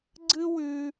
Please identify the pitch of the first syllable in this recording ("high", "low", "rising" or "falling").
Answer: high